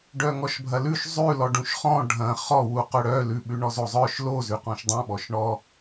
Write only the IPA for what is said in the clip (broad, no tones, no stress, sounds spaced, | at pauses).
ɖ œ ŋ ɔ ʃ bʱ ɐ l ʉ ʃ zˤ ʉ l ɔ ɖ ũ ʃ χ ɔ̃ ɖʱ ɐ̃ χ ɔ w u q œ ɽ œ l ʉ ɓ ʉ ɳ ɔ z o zˤ œ ʃ l o z ʉ q ɔ̃ ʃ dˤ ɐ̃ ɓ ɔ ʃ ɳ ɔ